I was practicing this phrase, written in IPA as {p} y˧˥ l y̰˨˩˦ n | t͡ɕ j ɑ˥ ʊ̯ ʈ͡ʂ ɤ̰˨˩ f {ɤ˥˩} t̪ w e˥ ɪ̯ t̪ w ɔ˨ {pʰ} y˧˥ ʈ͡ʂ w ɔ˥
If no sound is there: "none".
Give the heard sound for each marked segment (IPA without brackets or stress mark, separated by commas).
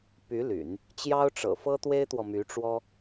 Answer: p, ɤ˥, m